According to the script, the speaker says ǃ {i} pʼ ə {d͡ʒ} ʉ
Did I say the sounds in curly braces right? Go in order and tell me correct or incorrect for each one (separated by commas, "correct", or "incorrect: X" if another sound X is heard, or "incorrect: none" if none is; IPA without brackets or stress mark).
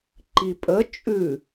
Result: correct, incorrect: t͡ʃʼ